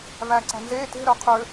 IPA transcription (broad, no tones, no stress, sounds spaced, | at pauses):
v æ ǀ æ̤ n z e t e̤ ɾ œ qʰ ø